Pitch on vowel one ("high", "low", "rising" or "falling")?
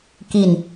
low